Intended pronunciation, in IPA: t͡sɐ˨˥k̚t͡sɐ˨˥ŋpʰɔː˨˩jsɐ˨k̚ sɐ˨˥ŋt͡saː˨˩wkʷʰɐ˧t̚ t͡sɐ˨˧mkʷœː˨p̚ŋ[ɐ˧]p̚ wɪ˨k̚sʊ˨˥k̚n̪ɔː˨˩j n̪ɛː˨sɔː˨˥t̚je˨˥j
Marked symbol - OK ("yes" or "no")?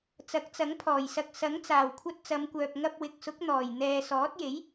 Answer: yes